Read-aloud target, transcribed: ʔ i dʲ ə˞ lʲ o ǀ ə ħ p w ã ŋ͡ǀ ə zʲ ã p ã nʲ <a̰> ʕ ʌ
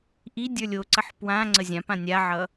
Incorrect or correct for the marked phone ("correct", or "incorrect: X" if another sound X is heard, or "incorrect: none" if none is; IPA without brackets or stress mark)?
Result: incorrect: a